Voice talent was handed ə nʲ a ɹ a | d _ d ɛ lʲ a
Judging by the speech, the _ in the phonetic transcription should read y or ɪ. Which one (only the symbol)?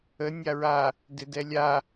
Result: ɪ